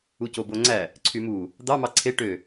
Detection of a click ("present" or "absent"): present